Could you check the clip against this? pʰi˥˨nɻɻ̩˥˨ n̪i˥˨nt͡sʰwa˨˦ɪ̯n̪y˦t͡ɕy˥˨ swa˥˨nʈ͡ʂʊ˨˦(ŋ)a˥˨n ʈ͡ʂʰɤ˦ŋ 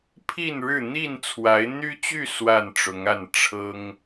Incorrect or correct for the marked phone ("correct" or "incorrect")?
correct